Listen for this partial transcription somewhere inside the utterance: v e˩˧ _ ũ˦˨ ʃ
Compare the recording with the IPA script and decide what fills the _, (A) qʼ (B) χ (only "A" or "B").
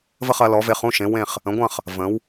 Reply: B